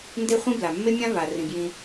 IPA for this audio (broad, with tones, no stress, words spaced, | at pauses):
nde˦χʷĩ˦bla˨ mːe˦mʲã˦ va˨rĩ˨bjĩ˧